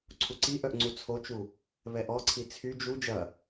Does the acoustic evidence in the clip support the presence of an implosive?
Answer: no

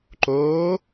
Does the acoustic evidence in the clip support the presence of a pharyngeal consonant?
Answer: no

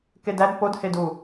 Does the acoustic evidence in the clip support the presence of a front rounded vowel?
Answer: no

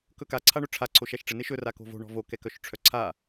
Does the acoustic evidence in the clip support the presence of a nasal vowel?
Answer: no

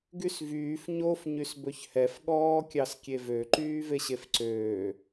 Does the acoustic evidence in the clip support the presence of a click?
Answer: yes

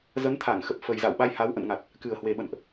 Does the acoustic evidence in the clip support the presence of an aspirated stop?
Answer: yes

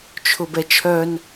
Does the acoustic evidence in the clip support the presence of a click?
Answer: no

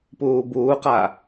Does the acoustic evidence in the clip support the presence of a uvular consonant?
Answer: yes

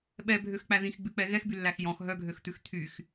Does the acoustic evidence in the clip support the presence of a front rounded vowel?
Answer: yes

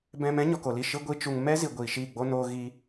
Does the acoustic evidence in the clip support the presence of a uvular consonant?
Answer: no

